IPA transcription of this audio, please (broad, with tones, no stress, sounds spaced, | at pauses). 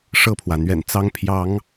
ʂ ɤ˥˨ pʰ w ä˩ n̪ ɥ ɛ̰˨˩ n t͡s ɑ˦ ŋ pʰ j ɑ˨˦ ŋ